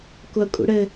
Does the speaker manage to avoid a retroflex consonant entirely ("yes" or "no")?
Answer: no